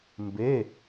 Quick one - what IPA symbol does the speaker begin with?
m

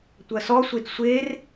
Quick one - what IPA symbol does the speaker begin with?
tʷ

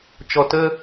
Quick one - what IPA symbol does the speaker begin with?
t͡ʃ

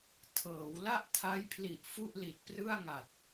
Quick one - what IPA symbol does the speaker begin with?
tʰ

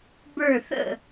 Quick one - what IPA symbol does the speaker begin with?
b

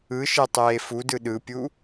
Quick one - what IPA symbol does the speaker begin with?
ɯ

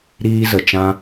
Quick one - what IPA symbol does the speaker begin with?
ɾ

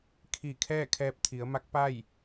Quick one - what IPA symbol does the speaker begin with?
kʰ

